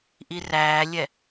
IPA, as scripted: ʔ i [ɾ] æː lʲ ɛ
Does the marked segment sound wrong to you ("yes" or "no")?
yes